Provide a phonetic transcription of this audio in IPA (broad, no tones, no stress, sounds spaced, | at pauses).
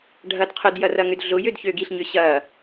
ɖʱ ɐ d qʰ ʊ d j ɐ r ɐ ŋ ʏ d ɮ ʊ j ø d ç ø ɡ i ɬ ɲ ʏ ɕ ɐ